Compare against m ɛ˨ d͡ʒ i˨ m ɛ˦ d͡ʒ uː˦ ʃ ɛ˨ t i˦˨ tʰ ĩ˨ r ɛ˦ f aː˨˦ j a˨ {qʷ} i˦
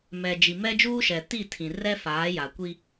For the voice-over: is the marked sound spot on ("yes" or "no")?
no